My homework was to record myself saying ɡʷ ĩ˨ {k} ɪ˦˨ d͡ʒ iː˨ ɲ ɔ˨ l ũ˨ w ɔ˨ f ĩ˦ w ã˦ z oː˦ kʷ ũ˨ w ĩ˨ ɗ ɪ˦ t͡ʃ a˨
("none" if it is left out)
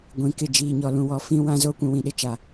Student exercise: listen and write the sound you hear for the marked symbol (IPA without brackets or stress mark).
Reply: k